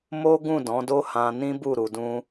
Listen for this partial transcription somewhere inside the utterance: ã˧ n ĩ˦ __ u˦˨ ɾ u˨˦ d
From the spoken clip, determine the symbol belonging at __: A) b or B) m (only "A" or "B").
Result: A